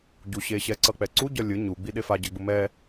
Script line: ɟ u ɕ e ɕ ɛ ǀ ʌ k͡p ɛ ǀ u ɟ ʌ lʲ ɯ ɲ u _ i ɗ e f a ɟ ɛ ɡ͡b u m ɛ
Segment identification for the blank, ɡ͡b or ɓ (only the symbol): ɡ͡b